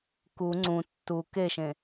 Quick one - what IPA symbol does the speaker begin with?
k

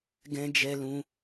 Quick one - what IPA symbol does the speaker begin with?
ɡ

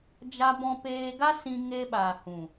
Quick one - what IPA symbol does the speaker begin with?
d͡ʒ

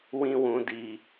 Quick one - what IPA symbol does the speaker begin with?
w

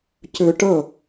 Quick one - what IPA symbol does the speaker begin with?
c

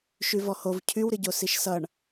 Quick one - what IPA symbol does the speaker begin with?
ʃ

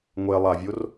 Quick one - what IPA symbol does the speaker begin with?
ŋʷ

